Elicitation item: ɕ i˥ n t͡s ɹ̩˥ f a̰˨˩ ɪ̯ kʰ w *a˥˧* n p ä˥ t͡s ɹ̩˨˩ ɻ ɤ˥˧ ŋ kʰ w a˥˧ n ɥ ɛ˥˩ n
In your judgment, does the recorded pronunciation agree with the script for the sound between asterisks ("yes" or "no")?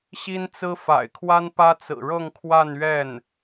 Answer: no